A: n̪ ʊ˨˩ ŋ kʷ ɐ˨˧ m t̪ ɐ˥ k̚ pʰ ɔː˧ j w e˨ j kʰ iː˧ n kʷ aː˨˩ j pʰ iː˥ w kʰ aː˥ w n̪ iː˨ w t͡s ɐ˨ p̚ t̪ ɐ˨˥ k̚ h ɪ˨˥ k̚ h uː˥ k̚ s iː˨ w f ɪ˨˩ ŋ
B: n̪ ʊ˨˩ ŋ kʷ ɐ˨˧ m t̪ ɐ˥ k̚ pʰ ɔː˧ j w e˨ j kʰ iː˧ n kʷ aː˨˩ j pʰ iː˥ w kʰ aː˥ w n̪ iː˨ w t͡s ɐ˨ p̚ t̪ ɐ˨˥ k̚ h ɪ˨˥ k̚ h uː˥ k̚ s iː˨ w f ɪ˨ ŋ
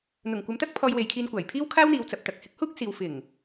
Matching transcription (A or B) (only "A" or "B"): A